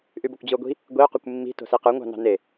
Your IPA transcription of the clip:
ʔ y b o kʷ d͡ʑ ɯ o̯ ɡʷ i̤ | ɡʷ i o̯ q u kʷ mː i̤ t o̤ s i q ɯ ŋʷ ɑ̤ n ɑ̤ n e

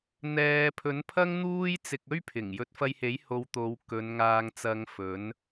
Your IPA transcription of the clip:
n̪ ɛː˨ pʰ ɵ˨˥ n pʰ ɐ˥ ŋ n̪ uː˥ j t͡s ɪ˧ k̚ ɵ˥ ɥ pʰ ɪ˨˩ ŋ j ɵ˨˥ t̚ f ɐ˧ j h e˨˥ j h o˨˧ w t̪ o˨˧ w k ɵ˨˧ n ŋ aː˧ ŋ t͡s ɐ˧ ŋ f ɵ˨˥ n

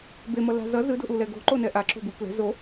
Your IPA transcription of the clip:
b e m ʌ l a̤ z ʌ z ɯ d o̤ ʔ u l ɛ ɡ o̤ ǃ o n ɛ ʔ a ǁ o̤ b ɯ k l ɛ̤ z o

